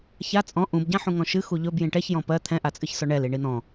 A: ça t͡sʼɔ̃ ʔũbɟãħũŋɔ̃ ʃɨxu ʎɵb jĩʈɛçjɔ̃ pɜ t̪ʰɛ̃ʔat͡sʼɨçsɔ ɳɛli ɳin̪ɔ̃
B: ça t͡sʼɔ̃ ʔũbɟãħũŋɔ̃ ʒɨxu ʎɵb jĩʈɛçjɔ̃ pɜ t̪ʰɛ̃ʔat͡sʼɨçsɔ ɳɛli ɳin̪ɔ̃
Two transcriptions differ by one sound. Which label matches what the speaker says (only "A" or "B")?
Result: A